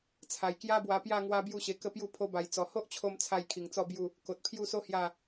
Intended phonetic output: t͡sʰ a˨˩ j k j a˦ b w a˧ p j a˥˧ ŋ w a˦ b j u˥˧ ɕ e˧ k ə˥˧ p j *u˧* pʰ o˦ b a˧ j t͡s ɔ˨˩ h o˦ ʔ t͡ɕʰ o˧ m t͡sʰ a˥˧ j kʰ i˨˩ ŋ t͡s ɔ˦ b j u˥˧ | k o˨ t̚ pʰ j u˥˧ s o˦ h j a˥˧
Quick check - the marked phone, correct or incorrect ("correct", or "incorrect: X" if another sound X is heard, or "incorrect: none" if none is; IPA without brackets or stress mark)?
incorrect: u˥˧